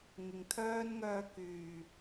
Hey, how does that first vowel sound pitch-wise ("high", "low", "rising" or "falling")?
low